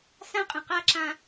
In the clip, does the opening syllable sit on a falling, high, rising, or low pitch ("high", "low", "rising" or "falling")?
high